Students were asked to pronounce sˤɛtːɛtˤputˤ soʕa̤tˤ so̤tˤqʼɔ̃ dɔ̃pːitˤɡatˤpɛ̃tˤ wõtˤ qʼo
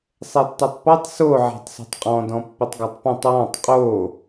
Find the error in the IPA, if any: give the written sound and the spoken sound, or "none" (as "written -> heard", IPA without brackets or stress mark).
õ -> ɔ̃